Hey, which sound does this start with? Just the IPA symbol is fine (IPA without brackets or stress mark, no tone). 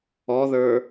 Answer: ɔ